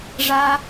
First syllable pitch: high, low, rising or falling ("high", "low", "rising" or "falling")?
low